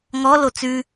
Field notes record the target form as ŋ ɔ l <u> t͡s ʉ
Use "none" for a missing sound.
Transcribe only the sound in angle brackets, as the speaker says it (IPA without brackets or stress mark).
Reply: o